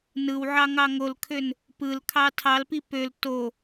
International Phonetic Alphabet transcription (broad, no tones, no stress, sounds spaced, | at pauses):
n ɯ w ʕ ɑ ŋ ɑ ŋ o l kʰ ø n | p ɯ l kʰ ɑ tʰ ɑ l p i p ø l t o